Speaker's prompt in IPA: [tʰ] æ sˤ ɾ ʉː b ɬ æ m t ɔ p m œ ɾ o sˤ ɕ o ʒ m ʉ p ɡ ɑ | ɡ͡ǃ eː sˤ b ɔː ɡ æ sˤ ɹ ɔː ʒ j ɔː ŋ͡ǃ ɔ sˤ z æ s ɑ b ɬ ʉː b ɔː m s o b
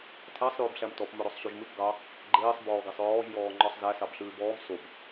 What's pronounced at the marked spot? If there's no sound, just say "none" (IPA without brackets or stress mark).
tʰ